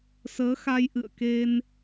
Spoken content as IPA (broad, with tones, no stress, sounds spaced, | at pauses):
s əː˨˦ x a˧ j ʔ ɨ̰˧˨ ə̯ k e˧ n